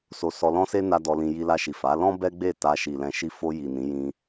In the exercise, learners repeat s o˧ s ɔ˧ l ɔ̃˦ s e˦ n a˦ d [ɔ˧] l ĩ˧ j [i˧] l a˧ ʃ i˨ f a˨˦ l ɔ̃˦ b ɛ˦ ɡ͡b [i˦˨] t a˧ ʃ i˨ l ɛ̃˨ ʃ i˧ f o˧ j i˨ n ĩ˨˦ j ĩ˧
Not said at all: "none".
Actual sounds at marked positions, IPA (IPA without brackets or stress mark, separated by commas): ɔ˧, i˧, e˦˨